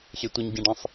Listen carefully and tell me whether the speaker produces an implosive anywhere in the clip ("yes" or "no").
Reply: no